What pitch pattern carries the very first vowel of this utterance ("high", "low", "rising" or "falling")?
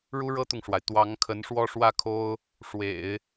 high